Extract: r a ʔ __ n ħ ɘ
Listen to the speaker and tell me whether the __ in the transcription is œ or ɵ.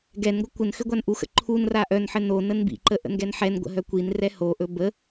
œ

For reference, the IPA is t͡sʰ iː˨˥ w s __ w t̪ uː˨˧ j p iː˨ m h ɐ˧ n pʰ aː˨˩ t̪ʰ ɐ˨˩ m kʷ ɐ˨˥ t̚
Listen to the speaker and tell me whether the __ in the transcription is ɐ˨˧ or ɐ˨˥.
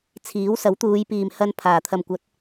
ɐ˨˥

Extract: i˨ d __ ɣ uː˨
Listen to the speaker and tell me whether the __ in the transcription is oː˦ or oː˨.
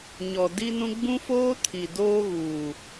oː˦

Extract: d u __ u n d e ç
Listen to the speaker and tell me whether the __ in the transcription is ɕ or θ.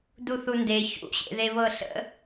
θ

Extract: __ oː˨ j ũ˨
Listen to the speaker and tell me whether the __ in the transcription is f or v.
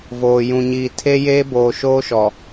v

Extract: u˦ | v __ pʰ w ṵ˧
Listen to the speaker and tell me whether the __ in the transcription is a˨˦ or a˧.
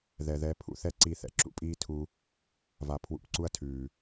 a˧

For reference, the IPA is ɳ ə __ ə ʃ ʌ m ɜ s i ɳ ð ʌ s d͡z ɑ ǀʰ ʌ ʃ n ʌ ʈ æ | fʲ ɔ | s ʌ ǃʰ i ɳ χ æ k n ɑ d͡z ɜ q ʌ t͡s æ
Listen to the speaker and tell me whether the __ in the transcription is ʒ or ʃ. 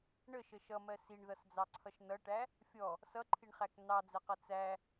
ʃ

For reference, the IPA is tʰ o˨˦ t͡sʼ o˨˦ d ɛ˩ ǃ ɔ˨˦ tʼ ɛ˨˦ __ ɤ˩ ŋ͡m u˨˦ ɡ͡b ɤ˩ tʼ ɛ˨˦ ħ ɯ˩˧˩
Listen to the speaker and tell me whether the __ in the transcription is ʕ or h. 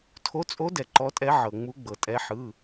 ʕ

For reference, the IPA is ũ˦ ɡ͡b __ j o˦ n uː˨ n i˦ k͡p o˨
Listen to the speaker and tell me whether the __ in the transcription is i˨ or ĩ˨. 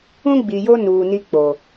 i˨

